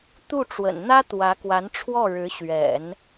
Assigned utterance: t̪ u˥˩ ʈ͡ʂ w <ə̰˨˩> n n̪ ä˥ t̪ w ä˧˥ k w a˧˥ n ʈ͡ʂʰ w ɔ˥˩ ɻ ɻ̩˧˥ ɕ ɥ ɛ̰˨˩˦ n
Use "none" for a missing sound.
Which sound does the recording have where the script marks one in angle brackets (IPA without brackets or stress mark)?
ə̰˨˩